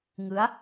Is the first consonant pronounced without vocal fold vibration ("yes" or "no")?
no